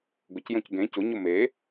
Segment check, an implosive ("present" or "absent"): absent